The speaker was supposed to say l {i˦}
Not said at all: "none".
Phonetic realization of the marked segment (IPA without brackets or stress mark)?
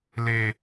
e˦